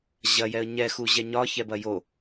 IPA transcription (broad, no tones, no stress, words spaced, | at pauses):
ʑɐjɛə̯ ɲɛxuʑɛ ɲɒçɛbɐ jo